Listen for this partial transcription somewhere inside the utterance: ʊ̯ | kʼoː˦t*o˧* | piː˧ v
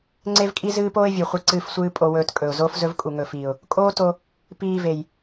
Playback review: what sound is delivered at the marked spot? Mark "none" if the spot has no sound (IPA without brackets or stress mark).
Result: o˧